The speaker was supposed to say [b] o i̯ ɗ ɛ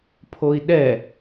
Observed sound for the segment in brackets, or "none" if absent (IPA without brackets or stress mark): pʰ